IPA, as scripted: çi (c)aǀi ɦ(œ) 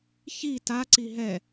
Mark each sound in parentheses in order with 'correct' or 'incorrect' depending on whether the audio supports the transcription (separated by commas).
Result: incorrect, incorrect